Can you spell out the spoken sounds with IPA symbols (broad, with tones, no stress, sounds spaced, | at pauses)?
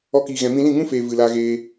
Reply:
ɔ˧ k iː˨ ɣ ɛ̃˨ m ĩ˧ l ĩ˦˨ ŋ ũ˦ f eː˨ v ɨ˨ l a˧ ɣ eː˧